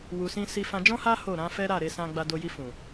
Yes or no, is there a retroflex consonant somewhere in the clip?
no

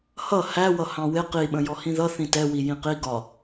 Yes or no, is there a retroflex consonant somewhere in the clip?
no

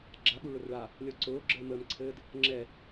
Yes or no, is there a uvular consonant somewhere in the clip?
no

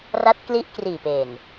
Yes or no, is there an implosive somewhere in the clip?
no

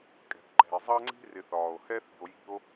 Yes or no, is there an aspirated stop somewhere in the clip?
no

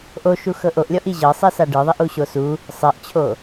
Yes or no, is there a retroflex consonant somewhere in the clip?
yes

